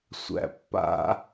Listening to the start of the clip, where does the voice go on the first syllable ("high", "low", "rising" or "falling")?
low